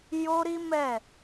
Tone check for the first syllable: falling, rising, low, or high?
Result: high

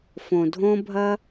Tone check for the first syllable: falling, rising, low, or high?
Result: low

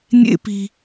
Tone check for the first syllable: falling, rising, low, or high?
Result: high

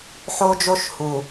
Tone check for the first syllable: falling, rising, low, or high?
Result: high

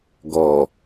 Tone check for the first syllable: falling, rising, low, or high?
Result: low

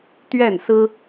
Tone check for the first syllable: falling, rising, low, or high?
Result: falling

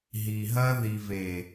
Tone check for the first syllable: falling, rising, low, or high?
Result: low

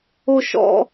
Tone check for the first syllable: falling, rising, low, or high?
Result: high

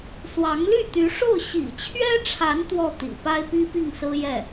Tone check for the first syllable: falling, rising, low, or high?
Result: rising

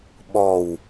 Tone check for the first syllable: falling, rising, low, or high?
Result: low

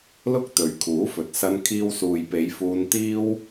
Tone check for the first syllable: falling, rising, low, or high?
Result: high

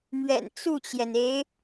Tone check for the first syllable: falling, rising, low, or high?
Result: low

